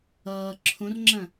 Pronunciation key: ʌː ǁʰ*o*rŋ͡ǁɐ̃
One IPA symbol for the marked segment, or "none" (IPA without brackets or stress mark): õ